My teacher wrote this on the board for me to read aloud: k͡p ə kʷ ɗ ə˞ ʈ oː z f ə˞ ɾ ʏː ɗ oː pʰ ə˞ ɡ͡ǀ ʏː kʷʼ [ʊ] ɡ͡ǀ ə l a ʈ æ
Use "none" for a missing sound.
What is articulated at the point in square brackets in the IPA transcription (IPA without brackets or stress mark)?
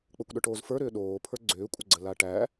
ə